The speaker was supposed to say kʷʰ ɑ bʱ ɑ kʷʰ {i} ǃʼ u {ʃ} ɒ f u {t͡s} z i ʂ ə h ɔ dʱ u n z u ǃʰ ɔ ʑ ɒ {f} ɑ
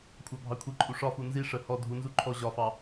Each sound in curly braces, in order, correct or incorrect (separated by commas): correct, incorrect, incorrect, correct